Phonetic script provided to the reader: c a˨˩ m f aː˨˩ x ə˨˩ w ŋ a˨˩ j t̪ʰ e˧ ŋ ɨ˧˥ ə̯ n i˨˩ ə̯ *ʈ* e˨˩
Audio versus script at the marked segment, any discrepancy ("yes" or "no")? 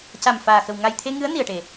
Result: no